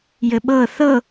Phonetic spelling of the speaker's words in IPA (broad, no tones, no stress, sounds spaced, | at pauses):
j ɘ ɓ ɤ θ ɤ